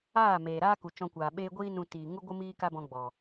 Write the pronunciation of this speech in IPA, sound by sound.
aː˦˨ m eː˨ ɾ aː˦ k u˨ t͡ʃ ɔ̃˧ kʷ aː˨ ɓ eː˦ ɡʷ iː˦ n ũ˧ t iː˨ ŋ u˦ ɡʷ ɨ˦ m iː˦ k a˦ b ɔ̃˧ ɡ͡b ɔ˨

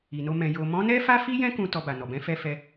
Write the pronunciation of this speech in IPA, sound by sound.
i˨ n o˧ m ɛ̃˨ j o˨ m ɔ̃˨˦ n ɛ˦ f a˦ f i˦ j ɛ̃˦ k ũ˧ t ɔ˧ b a˨ n ɔ˨ b ɛ̃˨˦ f ɛ˧ f ɛ˧

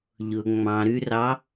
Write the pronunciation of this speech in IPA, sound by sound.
ʎ ʊ ŋ͡m ɑ̃ ɾ ʉ r ɑ

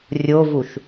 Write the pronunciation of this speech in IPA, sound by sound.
rʲ o v u ʃ

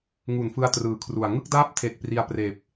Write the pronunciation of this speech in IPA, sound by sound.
ŋ u˨˩ n f ɯ˧ a̯ t r ɯː˨˩ kʰ r u˨˩ a̯ ŋ ɯ˥˩ k̚ d aː˥˩ p̚ tʰ e˨˩ k̚ p r i˧ a̯ p r eː˨˩ p̚

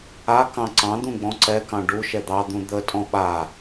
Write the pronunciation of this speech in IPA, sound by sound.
a k ɑ̃ ǀ ɑ̃ d̪ ũ ɡ͡b ɔ̃ ǀ ɛ k ɑ̃ ɖ u ʃ ɛ d̪ ɑ d̪ ũ d̪ ə tʼ ɔ̃ ɓ a

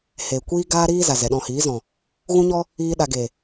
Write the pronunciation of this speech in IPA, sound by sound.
h eː˨ kʷ iː˦ ɡ aː˦ ɾ iː˦ z a˨ z ɛ˨ ɗ ɔ̃˧ h iː˨˦ z ɔ̃˨ | ɣ ũ˦ ɲ ɔ˦ | iː˦ ɗ a˧ ɡ e˨

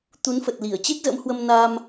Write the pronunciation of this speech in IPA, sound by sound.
t̪ u˨˦ n f ə˨˩ t̚ l i˧˩ ə̯ t͡ɕ e˦˥ k̚ z ə̰˧˥ m h w ə˧ m n a˧ m

